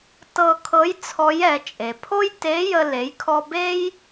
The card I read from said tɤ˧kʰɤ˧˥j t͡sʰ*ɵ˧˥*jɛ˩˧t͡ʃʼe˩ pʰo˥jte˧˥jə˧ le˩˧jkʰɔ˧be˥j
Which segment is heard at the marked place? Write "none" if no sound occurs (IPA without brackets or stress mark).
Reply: ɔ˧˥